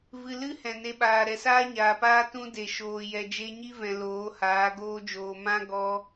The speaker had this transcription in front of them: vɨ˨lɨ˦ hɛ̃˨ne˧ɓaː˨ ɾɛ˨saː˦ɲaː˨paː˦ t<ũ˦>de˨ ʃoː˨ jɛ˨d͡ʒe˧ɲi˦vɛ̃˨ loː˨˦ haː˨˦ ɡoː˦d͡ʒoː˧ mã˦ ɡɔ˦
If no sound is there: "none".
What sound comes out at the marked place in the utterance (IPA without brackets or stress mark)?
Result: ũ˦